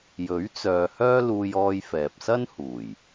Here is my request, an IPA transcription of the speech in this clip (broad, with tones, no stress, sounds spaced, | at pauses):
j ɵ˨˥ ɥ t͡s œː˨ h œː˥ l uː˧ j ɔː˧ j f ɛː˨ p̚ s ɐ˥ n h uː˨˩ j